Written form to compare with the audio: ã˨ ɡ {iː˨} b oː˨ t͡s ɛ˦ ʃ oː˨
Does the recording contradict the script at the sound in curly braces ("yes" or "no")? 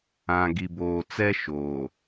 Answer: yes